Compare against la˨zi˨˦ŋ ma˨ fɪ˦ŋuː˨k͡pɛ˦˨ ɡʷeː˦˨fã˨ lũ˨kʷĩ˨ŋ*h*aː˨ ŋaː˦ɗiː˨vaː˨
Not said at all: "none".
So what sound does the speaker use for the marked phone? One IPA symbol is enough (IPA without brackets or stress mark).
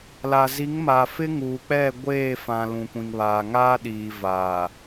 β